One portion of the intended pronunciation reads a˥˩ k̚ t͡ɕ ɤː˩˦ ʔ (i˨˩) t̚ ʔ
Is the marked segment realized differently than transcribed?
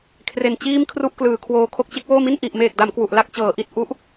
no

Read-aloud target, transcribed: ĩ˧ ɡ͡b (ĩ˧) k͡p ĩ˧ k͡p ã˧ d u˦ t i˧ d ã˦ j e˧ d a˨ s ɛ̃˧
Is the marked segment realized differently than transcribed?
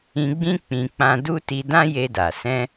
yes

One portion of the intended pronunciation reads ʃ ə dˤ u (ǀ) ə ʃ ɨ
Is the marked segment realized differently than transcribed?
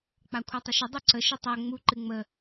no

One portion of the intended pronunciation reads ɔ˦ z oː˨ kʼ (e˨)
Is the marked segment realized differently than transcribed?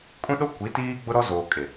no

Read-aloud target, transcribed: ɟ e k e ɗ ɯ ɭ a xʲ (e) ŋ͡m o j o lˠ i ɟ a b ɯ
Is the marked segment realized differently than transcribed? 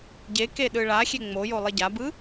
no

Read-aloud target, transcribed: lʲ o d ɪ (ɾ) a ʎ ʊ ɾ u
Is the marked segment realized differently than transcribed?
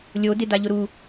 yes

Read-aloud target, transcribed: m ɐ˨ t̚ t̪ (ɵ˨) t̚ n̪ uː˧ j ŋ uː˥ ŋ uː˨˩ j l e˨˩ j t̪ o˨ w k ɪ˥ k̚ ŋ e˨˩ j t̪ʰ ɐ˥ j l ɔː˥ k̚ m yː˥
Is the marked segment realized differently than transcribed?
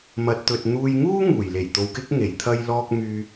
no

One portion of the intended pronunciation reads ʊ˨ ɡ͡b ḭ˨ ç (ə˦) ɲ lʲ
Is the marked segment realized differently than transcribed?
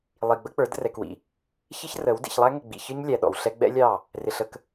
yes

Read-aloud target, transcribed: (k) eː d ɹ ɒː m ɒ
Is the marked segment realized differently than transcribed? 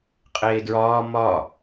yes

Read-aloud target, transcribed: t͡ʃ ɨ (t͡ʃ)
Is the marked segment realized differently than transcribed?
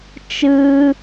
yes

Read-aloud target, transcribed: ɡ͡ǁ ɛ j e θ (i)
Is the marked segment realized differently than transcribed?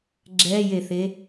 yes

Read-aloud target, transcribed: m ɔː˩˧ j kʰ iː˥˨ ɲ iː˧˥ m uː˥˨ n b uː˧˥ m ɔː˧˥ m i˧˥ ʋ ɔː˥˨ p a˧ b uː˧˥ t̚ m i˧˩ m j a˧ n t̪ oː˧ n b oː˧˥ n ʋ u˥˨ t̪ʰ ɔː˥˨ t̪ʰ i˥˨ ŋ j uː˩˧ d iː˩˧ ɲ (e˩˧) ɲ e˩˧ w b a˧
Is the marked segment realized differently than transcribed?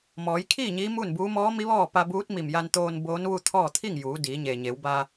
yes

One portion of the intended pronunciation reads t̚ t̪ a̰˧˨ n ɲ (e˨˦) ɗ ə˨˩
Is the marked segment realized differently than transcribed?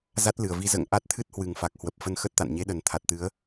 no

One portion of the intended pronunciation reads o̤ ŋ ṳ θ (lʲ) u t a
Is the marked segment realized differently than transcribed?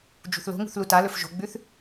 yes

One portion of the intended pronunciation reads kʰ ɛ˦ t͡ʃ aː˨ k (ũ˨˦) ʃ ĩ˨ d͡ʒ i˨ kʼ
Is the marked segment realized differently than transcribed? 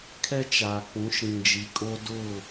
no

